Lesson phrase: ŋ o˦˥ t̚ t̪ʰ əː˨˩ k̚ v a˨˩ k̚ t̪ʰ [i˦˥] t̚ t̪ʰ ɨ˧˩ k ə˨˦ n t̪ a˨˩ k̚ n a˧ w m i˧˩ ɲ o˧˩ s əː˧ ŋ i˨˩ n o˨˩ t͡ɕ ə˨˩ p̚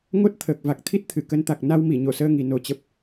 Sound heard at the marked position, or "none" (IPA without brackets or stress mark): i˦˥